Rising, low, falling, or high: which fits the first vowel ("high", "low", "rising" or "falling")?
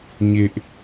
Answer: high